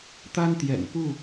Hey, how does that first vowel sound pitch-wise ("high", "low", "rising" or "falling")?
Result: high